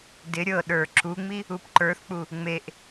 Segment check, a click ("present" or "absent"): present